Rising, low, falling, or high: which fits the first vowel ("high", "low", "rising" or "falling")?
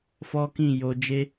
high